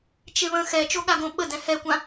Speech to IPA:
t͡ʃ e β ə̃ x ɛ t͡ʃ o ɠ a ɡ õ ɓ ə d ɛ̃ h ɛ kʷ ã

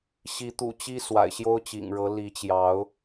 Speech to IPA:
ɕ i˨˦ t̪ ṵ˨˩ t͡ɕ i˦ s w a̰˨˩ ɪ̯ ɕ j o˦ ʊ̯ t͡ɕ ḭ˨˩ ŋ ɻ ɤ˨˦ l i˨˦ t͡ɕ j ɑ˨˦ ʊ̯

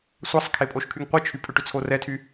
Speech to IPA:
sʷ a sˤ kʰ e pʼ o ʃ kʰ y ŋ qʷ e t͡ʃʰ y pʼ ʏ ʈ ʏ t͡sʰ o r ɛ tʰ y

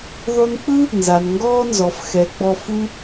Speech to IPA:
ðˤ u˧ n k͡p ɯ˦ | n z a˨ n ŋ ɡ ɔː˦ n z ɔ˨ f x ɛ˨˦ ɡ͡b ɔ˧ f u˧

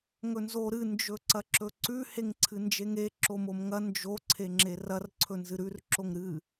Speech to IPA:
ŋ ɵ n z o ɾ ɨ n d͡ʒ ɵ ǀ ɐ ǁ ɵ ǀ ʉ h e ŋ ǀʰ ɨ n d͡ʒ e ŋ e ǁ o m o m ŋ ɐ n d͡ʒ o ǀʰ e ŋ͡ǁ e r ɐ r ǀʰ ɵ n z ɨ ɾ ʉ r ǁ o ŋ ɾ ɨ

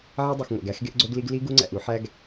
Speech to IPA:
ʕ i˦ dˤ u˨ x ŋʷ æ̰˨ ɡ æ˦ x ɡ e˦ ʔ ɡ͡ǀ o˦ ɡ l i˦ ɡ l i˦ ɡ u˦ ŋ͡ǀ æ̰˨ ʔ u˦ ħ æ˦ ɡ

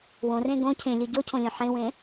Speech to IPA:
w õ r ẽ ɡ õ cʰ ẽ lʲ u ɟ o cʰ õ lʲ õ ħ ẽ w ẽ

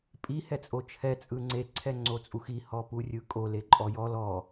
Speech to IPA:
pʼ i h ɛ t͡sʼ o t͡ʃʰ ɛ t͡sʼ ɯ ŋ͡ǀ e ǀʰ ɛ ŋ͡ǀ o t͡sʼ u x i h ɔ p u rʲ ɯ kʼ o l e ǃʼ ɔ j ɔ l ɔ

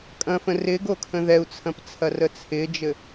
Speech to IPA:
kʼ ɐ̃ f ə̃ r ɪ ɡ o kʰ ə̃ ð ɛ u̯ t͡sʰ ɐ̃ p t͡sʰ ɐ r ə t͡sʰ ɪ d͡ʒ ɘ

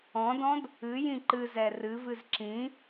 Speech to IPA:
ɔ̃ d ɔ̃ d | ɨ j ĩ ǃ ɨ z ɛ r ɨ v ɨ z ǁ ĩ

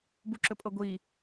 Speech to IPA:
b u ǁ ɵ pʼ ɤ ɡʷ i

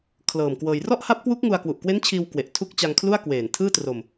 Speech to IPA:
kʰ l ɤː˨˩ m k w ɤː˧ j r ɔ˥˩ ʔ h a˦˥ p̚ k w u˦˥ k̚ ŋ u˧ a̯ k w u˨˩ ʔ k w e˦˥ n t͡ɕʰ iː˧ w k w e˨˩ ʔ tʰ u˦˥ k̚ t͡ɕ a˧ ŋ kʰ l u˥˩ a̯ k w eː˨˩ n tʰ ɯː˥˩ t r o˧ m

